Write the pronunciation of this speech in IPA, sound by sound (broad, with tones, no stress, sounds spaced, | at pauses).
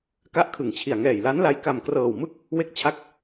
k a˦˥ ʔ kʰ ɯ˨˩ ŋ t͡ɕʰ i˨˩ a̯ ŋ ɛː˨˩ j l a˦˥ n l a˧ j k a˨˩ m k r ɤː˨˩ w m ɯ˥˩ k̚ | w e˦˥ k̚ t͡ɕʰ a˥˩ k̚